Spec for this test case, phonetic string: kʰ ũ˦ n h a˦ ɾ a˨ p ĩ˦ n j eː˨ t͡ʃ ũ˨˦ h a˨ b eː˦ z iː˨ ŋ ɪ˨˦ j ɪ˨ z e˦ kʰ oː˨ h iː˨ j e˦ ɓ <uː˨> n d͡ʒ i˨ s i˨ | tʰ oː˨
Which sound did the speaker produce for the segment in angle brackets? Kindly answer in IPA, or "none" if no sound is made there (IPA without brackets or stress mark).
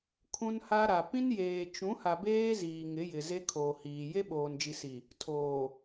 oː˨